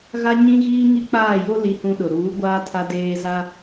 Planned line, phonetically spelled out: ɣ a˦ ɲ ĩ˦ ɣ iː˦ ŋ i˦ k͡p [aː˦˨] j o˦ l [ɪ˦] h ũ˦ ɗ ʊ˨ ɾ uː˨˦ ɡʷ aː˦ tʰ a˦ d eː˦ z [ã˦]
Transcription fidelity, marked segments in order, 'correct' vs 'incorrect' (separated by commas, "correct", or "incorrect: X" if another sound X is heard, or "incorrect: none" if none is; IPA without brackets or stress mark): correct, incorrect: i˦, incorrect: a˦